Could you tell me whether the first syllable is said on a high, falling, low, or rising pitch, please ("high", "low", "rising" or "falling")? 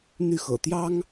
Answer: falling